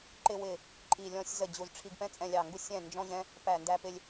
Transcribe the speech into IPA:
ǃ ɪ˧ w ɪ˧˩ | ǃʼ i˧˩ lʲ ɔ̃˧ sʲ z ə˧˩ d͡ʑ u˧˩ z ʈ͡ʂʰ i˧ ɡ p ɛ̃˧ t͡sʼ ɛ̃˧˩ lʲ ɑ˧˩ ŋ ɡ u˧ sʲ ɛ̃˧˩ n d͡ʒ ɔ̃˧ ʑ ɛ̃˧ | p æ˧˩ n d æ˧ p ɪ˧ lʲ

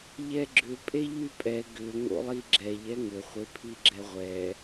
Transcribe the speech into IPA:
ʎ ɛ ɡ͡ǁ ʏ pʼ e ʎ y pʼ ɛ ɡ ʏ ŋ o̰ lˠ i ɡ͡ǁ ɛ ʎ ɛ ŋ ʏ χʷ e pʰ i ɡ͡ǁ ɛ ʁʷ ɛ

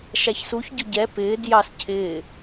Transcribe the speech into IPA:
ʃ æ ç s u ç ɟ ʊ ɟ ɛ p ɪː d j ɑ s cʰ ɪː

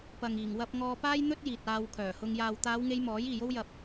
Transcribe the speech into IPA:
p ɐ˨ ŋ iː˨˩ ŋ w ɐ˧ p̚ ŋ ɔː˧ p aː˥ j n̪ ɵ˥ t̚ j iː˨ t̚ aː˧ w kʰ œː˨˩ h ʊ˧ ŋ j aː˨ w t̪ aː˨˧ w ŋ e˨˧ j m ɔː˨˥ j iː˨ j o˥ w j ɐ˧ p̚

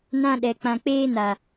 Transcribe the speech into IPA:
n ã˧ ɗ ɛ˨ k͡p ã˨ k͡p eː˧ n a˨

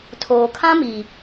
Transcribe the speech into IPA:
tʰ oː˨ kʰ ã˦ m i˨

